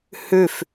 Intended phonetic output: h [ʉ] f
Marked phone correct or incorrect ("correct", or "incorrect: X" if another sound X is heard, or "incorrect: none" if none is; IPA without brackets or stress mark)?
correct